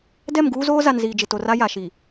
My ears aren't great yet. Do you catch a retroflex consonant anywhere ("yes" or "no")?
no